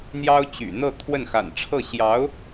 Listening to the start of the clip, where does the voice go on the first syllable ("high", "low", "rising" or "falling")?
high